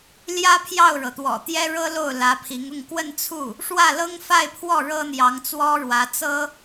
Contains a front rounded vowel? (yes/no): no